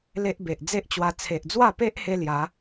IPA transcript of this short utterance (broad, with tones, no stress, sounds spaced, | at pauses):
l e˦ ʔ b e˨ ʔ d͡z e˦ ʔ t͡ɕ w a˧ t͡sʰ e˨ ʔ d͡z w a˥˧ p e˦ ʔ h e˦ l j a˨˦